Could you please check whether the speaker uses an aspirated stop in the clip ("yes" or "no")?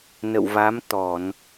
no